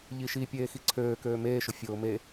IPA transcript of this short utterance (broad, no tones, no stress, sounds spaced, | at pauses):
ʎ i ʃ i pʲ eː x i ǀʰ øː k øː m eː ʃ ʊ fʲ ʊː m e